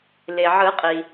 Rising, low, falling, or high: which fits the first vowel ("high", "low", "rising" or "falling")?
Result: low